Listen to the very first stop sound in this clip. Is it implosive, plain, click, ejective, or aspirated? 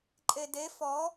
click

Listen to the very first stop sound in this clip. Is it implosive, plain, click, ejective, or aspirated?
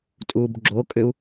ejective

